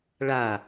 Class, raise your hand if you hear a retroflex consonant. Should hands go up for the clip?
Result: yes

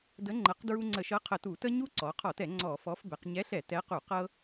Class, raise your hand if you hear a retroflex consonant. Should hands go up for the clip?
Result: no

